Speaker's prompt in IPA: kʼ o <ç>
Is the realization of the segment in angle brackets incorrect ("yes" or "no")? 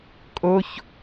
no